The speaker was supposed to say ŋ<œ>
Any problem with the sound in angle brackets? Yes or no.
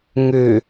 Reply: yes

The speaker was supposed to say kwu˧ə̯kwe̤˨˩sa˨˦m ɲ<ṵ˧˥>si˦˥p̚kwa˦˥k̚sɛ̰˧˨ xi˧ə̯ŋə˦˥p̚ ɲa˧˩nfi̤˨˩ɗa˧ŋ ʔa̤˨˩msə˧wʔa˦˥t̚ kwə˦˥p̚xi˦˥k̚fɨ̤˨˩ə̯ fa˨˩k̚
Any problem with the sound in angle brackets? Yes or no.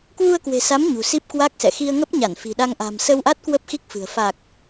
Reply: yes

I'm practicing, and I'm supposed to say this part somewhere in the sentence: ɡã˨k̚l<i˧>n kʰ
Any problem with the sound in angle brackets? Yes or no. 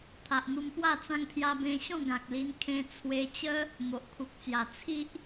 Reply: no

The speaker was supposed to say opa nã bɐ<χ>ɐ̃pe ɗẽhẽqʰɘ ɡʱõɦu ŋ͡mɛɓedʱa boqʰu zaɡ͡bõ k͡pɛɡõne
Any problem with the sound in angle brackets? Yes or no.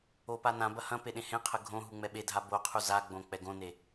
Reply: yes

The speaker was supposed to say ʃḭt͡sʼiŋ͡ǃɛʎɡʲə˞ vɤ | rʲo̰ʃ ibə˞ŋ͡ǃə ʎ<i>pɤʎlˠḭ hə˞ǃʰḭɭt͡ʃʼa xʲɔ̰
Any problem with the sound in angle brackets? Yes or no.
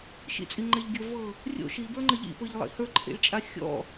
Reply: yes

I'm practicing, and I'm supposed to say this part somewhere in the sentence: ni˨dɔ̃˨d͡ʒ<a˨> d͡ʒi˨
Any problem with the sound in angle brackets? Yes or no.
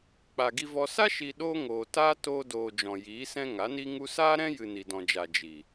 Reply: no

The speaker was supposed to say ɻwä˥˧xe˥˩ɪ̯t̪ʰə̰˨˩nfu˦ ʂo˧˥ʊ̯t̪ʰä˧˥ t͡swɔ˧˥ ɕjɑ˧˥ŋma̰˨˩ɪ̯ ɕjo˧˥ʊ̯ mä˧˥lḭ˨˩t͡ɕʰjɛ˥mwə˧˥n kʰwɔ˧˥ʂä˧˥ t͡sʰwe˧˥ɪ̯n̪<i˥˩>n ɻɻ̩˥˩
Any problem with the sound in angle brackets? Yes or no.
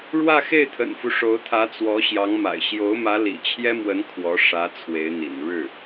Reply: yes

